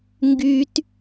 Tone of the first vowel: high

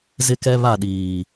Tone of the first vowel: high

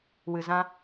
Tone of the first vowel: low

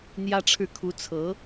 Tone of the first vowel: high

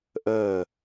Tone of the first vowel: falling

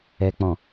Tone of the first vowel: low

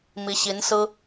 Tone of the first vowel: rising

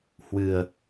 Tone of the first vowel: low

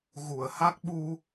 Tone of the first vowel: low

